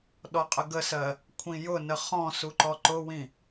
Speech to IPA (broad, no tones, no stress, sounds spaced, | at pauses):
ɗ ɔ qʼ ə ɡ ə s ɜ | kʷʰ ĩ j ʊ n ə χ ɔ̃ s u ǃ ɔ ǃ ʊ w ĩ